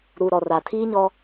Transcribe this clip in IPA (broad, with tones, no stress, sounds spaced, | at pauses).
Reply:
ɾ u˨ ɾ ɔ˨ r a˨ tʰ iː˦ ɲ ɔ˦